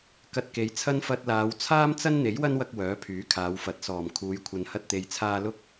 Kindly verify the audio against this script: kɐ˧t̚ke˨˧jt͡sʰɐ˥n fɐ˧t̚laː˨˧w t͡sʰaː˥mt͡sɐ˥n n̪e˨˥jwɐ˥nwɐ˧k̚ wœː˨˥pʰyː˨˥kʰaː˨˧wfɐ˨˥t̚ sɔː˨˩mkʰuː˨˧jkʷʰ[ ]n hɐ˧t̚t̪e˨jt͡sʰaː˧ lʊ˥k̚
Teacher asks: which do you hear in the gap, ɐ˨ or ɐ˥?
ɐ˨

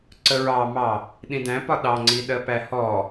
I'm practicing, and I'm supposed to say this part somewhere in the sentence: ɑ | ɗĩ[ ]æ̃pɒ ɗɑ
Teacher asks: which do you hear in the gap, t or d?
d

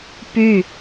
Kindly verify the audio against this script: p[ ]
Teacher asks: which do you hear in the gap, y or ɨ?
y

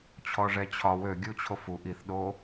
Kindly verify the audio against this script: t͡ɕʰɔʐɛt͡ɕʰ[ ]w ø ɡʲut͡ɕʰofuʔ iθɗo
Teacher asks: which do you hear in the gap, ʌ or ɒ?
ɒ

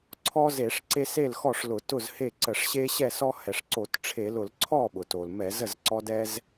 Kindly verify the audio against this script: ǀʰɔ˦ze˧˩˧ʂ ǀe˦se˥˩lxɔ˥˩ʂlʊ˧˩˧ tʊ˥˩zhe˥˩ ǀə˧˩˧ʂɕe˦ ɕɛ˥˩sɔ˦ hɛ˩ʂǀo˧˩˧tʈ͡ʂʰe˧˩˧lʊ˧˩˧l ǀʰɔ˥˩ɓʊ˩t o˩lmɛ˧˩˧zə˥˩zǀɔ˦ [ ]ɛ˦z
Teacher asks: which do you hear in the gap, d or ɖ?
d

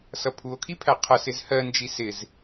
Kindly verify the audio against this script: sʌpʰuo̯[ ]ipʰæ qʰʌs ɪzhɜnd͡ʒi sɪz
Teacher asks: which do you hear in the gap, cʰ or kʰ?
kʰ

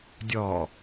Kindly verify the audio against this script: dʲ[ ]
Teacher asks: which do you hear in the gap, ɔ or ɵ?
ɔ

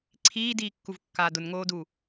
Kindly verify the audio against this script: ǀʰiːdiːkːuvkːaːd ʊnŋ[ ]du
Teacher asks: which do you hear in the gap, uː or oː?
oː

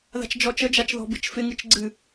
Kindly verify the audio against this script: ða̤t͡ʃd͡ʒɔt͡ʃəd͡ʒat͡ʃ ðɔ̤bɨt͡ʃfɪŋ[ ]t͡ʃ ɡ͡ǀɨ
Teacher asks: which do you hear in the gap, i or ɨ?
ɨ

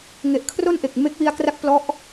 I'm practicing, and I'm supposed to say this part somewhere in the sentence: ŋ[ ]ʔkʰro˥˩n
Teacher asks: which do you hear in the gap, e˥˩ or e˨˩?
e˨˩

